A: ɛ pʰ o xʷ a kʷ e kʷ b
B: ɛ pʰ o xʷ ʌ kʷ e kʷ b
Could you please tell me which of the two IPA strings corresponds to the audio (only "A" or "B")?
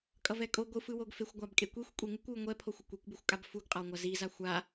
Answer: B